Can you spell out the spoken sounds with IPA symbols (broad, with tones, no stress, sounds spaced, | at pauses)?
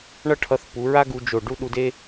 ɳ ʌ˥ ʈʰ ʌ˧ θ p u˩˧ ɹ a˥ ɡ u˧ d͡ʒ o˧˩ ɖ u˥ ɗ u˧ d e˥